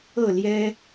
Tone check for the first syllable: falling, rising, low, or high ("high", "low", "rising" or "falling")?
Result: falling